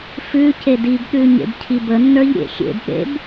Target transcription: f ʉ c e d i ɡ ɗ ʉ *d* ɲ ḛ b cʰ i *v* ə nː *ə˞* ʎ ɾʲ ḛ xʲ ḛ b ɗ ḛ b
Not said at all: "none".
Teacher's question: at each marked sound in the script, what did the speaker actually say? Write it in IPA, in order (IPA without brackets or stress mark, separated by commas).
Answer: none, b, ə˞